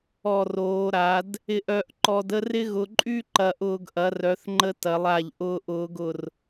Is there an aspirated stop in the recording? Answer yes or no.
no